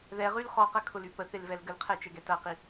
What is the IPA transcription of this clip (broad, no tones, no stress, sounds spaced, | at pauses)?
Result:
ð ɛ ʁ y l χ ɔ q ɐ kʰ ʊ l y p ə θ e l v ɛ l ɡ ə l qʰ ɛ t͡ʃ ɛ ɡ ɛ t ɐ q i